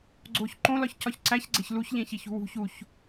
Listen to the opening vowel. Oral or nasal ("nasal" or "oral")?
oral